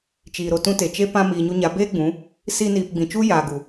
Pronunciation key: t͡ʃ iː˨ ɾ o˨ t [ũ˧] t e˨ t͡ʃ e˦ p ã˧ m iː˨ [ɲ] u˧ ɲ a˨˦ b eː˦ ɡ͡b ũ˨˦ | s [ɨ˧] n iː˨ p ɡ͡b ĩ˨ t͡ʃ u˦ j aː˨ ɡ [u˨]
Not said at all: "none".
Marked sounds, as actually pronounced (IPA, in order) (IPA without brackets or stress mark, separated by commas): ũ˧, ɲ, i˧, u˨